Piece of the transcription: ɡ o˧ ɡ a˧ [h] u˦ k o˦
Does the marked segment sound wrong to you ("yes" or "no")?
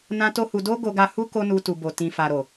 no